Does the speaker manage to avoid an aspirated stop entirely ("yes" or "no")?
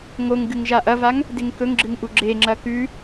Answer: yes